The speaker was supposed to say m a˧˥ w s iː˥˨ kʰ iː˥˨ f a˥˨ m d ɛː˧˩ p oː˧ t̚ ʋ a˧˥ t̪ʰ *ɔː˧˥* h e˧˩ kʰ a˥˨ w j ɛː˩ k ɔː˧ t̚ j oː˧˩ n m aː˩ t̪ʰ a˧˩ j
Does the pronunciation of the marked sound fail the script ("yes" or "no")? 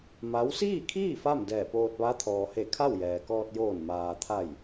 yes